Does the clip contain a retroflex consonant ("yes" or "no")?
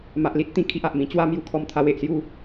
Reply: no